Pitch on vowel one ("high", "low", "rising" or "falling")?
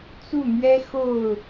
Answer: falling